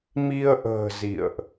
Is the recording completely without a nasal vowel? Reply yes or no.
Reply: yes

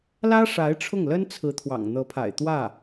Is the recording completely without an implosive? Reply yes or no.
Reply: yes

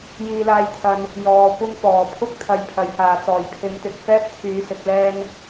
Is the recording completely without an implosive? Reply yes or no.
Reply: yes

